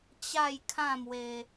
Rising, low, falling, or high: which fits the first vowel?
falling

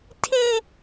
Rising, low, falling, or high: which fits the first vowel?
high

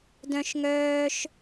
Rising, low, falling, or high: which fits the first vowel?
high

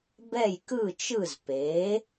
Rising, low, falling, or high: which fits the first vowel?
falling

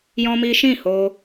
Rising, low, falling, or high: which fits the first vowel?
high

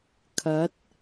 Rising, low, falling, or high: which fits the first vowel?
rising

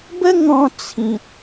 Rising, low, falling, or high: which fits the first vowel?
high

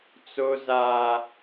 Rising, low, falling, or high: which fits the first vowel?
high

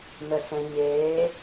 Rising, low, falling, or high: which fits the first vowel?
low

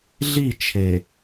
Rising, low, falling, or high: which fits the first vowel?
falling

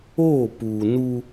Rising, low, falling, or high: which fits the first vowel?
falling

